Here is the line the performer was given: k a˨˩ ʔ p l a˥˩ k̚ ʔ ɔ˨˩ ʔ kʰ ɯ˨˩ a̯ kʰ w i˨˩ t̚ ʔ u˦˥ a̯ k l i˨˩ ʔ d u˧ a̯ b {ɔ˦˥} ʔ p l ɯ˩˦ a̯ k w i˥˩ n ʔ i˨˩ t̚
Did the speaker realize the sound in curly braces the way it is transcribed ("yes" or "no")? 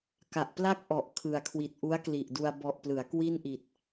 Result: no